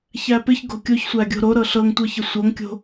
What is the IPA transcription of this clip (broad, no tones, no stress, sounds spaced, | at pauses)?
ç æ p ɪ ç ɡ o̤ kʲ o ç sʷ æ ɡʲ o̤ ɾ o ɾ ɤ ɬ ɤ ŋ tʷ ɤ ç ə sʷ ɤ ŋ kʲ o̤